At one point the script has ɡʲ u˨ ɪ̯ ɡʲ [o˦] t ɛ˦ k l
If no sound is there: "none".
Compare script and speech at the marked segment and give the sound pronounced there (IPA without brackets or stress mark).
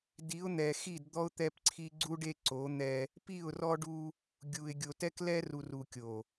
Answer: o˨